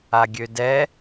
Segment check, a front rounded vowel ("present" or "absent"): present